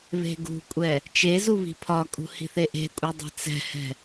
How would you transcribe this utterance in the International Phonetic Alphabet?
βe̤ɡṳkʷʼɛ | t͡ʃezu βi̤pʰɒkʼṳ hi̤θeʔe̤kʷʼɛ dˤɛ̤t͡sɛ̤hɛ̤

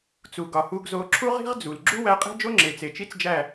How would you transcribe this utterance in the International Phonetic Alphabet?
t͡su˨ ɡɒ˨hu˧ɡzo˧ ǁʰu˦ʁi̤˦ʁ d͡zu˨l ɡ͡ǁu˦wæ˧ qʼe̤˦d͡ʒo˦ŋ͡ǁe˨ t͡se˨t͡ʃi˦t͡sd͡ʒæ˦˨

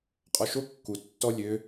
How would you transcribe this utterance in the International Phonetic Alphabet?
qʼɔʃo kːu tːɔ lʲø

